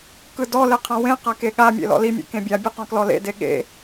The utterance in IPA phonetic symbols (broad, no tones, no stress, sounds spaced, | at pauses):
k ɯ d ɔ l e qʰ ã w ẽ q a k e ɠ a mʲ ḛ l ɔ̰ l i mʲ ḛ k ẽ bʲ a bʲ ɯ q ɔ̃ k l ɔ l ḛ d e ɠ ḛ